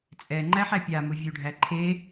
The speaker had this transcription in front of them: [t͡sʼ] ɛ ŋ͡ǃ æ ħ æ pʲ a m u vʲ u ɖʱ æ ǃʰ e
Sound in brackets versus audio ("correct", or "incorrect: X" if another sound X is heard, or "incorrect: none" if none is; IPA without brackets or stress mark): correct